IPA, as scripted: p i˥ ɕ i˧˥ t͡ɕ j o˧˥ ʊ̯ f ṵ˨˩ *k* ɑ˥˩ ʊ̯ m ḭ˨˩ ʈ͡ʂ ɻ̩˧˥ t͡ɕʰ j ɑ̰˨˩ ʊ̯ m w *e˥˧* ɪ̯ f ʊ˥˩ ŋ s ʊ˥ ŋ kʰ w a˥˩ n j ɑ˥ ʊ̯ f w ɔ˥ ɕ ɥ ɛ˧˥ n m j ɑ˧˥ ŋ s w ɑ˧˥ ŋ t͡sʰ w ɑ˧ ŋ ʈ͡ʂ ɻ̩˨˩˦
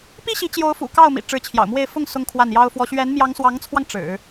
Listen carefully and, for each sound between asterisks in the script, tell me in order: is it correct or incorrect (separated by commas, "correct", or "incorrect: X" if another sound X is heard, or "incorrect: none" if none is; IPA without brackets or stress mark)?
correct, correct